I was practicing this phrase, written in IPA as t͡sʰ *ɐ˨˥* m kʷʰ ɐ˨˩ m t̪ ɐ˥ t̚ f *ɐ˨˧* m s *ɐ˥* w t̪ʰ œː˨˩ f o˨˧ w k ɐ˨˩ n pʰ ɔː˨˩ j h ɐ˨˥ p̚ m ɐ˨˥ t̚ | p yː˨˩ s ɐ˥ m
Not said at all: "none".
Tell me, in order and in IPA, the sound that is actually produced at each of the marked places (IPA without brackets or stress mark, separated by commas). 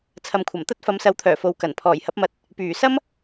ɐ˨, ɐ˨˧, ɐ˨˥